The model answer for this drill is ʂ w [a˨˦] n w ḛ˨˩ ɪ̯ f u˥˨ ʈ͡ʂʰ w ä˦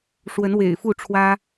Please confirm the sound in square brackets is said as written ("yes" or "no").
no